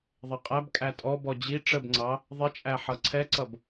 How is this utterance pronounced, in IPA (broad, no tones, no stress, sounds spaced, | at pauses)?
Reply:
ðˤ ɛ qʼ æ b kʼ æ tʼ ɔ b ɔ d͡ʑ i ʈ͡ʂ ə b ŋ͡ǀ ɑ | ðˤ ɪ t͡ʃʼ æ ħ ʌ ǀʰ ɛ ǀ ʌ b